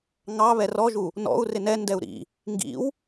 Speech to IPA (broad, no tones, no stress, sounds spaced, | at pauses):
ŋ ɑ β ɛ r ɔ ʒ u | n ɔ̰ u̯ r ɪ n ɛ n d ɛ u̯ ɾ ḭ | ŋ ɡ ḭ w